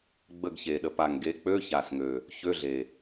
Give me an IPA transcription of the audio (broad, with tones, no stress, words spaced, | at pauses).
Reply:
ɡ͡bə˦˨ɡçe˨˩ɗə˨˩˦ pa˨˩ŋɡe˨˦ k͡pø˧˥˧ça˨˩sŋø˨˩ | çø˧˥˧ɮe˨˩